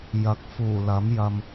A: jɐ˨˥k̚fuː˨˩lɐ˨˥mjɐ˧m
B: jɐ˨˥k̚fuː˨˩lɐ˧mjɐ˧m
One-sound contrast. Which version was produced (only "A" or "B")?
A